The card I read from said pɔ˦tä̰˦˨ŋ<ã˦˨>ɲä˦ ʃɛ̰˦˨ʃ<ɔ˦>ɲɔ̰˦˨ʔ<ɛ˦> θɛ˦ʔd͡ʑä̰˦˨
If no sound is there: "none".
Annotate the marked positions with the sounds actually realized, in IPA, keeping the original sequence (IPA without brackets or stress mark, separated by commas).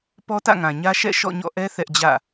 ã˨, ɔ̰˦˨, ɛ˦